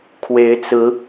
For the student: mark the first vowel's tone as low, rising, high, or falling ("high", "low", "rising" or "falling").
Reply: rising